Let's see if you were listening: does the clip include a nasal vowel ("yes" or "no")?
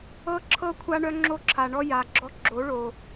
no